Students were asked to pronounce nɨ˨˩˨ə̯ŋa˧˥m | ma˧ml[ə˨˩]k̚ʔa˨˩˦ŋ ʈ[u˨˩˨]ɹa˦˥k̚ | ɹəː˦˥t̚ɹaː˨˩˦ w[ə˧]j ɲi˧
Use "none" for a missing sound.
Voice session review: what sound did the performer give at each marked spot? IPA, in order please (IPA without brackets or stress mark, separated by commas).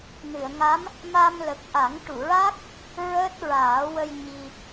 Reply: ə˨˩, u˨˩˨, ə˧